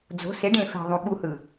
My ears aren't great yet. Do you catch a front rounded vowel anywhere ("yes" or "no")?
no